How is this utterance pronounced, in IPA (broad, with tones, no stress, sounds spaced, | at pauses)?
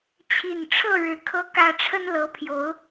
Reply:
t͡ɕʰ i˨˩ n ʈ͡ʂʰ ɤ˥˨ ɻ ɻ̩˨˩ kʰ ɤ˦ k ä˦ ʈ͡ʂʰ ə˦ n l ɤ˨˦ pʰ j o˨˦ ʊ̯